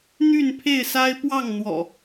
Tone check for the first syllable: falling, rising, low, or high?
falling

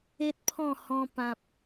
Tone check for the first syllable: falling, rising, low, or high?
high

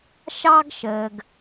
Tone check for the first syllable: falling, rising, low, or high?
high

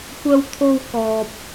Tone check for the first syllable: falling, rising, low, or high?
high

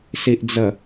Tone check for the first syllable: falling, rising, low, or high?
low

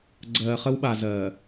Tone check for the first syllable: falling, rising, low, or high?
low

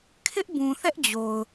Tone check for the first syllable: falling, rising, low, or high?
high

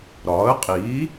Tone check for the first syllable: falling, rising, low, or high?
rising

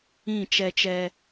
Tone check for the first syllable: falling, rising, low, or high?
falling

